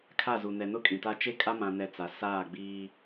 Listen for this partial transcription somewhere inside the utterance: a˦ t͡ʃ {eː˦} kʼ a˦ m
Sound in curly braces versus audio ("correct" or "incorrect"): incorrect